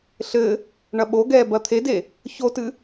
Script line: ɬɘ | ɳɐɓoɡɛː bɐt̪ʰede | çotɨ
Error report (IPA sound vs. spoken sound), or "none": none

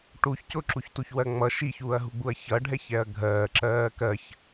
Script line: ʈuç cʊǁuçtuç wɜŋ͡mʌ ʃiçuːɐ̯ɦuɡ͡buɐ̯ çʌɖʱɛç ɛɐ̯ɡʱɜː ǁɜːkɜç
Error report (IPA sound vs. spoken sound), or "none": none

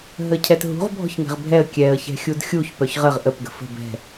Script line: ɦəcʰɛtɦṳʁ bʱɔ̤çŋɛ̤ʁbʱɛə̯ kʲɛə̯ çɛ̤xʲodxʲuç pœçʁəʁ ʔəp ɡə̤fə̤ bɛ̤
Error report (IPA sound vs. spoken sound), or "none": o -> u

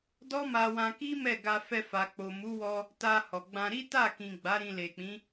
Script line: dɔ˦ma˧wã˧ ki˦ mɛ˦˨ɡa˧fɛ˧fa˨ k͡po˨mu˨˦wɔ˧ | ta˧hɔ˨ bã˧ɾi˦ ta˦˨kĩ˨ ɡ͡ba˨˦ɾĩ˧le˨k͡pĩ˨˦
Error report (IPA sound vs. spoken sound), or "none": b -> ɡ͡b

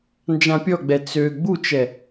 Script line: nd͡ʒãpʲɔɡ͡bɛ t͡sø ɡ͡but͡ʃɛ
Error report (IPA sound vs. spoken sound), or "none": none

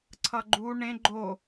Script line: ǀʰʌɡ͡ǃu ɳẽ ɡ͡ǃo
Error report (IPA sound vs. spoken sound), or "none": none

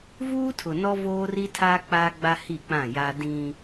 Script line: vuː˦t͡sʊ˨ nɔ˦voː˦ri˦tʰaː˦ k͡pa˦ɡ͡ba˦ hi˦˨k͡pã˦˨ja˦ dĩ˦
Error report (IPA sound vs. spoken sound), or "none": t͡s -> tʰ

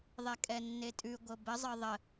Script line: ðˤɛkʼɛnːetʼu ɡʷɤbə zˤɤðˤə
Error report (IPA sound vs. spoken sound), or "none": u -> ʉ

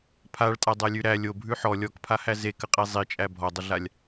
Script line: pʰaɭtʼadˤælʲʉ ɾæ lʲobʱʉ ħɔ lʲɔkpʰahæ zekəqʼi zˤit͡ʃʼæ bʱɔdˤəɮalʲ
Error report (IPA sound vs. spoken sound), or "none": none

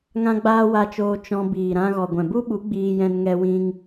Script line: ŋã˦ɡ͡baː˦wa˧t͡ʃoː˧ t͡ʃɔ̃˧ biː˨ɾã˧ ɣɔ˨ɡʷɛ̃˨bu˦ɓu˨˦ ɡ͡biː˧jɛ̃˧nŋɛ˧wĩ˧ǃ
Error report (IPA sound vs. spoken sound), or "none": ǃ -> ŋ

